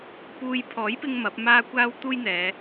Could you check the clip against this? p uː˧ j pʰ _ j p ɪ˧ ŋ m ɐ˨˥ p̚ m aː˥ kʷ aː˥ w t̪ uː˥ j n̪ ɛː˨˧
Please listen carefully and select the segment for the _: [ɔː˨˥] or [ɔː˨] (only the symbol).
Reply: ɔː˨˥